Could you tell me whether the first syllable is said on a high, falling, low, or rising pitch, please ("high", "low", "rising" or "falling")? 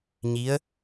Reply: rising